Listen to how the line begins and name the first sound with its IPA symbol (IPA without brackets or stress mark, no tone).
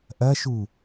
ʔ